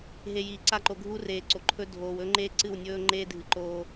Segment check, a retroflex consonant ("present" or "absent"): absent